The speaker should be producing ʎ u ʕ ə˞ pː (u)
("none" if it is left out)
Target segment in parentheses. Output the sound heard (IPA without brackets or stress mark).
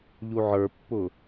ʊ